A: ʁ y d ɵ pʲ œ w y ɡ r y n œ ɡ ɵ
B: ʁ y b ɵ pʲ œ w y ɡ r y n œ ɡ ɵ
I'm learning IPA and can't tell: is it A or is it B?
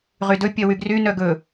A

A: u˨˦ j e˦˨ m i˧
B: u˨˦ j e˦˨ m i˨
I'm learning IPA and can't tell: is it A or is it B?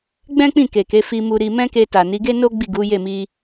A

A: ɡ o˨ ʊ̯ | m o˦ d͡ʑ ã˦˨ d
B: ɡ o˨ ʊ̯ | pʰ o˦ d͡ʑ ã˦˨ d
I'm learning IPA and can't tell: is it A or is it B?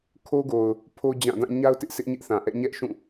B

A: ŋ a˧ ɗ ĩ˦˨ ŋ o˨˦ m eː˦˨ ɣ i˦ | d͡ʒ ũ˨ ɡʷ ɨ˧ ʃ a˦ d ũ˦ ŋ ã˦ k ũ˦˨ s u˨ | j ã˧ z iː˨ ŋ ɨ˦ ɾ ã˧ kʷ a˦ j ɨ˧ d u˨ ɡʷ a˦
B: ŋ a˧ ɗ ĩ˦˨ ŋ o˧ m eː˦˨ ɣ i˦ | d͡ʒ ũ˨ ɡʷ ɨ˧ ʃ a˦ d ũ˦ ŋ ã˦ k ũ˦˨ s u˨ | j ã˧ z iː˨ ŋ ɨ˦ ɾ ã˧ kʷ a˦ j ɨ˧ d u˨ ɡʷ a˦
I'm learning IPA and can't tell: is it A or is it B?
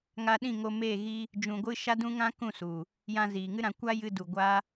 B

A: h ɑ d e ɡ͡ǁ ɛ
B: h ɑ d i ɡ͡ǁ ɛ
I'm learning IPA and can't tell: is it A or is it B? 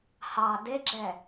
A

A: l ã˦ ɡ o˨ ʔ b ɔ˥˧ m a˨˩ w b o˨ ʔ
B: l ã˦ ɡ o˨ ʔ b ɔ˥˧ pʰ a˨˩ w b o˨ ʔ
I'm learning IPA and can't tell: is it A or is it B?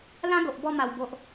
A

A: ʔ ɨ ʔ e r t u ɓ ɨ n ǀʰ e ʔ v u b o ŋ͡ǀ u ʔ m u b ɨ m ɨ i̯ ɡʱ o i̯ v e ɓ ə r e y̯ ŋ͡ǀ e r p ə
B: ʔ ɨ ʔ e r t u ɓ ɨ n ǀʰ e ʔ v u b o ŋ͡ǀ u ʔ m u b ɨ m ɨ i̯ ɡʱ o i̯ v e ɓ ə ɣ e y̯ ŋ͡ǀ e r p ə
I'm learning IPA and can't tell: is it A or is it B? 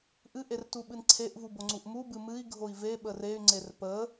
A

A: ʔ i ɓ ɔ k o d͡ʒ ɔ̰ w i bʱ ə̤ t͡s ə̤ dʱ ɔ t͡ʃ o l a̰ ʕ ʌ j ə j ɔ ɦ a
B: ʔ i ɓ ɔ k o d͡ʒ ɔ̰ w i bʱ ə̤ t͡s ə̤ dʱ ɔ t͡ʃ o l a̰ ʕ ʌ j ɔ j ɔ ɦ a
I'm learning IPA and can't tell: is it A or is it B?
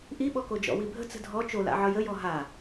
A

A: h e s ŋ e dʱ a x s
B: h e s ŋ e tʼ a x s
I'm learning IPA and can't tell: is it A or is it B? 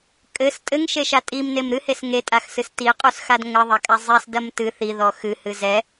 B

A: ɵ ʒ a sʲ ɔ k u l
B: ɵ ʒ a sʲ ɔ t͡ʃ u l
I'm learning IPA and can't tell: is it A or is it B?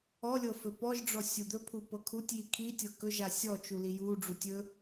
B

